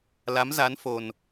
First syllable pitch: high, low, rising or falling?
rising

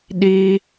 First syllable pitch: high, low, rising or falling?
high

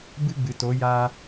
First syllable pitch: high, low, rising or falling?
high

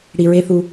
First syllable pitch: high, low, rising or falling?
low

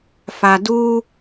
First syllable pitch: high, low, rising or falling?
low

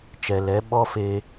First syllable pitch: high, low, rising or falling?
low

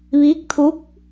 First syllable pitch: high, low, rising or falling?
rising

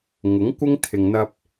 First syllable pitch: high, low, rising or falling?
rising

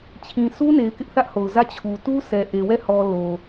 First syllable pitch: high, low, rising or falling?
low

